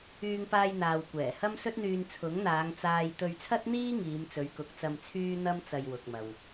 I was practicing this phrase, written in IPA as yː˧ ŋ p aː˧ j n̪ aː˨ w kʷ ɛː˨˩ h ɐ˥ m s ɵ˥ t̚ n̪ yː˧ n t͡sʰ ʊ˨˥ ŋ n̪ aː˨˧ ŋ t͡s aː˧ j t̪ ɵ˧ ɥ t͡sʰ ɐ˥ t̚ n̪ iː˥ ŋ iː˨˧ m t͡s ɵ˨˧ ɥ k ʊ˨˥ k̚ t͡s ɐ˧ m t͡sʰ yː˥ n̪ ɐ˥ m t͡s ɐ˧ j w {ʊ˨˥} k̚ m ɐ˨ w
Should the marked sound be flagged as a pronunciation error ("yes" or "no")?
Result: yes